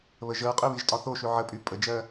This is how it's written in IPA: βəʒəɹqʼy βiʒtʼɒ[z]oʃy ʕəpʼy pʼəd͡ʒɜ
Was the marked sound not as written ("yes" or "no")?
yes